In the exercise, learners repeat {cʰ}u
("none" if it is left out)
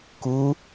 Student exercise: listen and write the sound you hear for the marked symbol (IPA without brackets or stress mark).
k